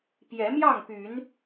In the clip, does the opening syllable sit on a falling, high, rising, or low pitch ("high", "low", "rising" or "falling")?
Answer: rising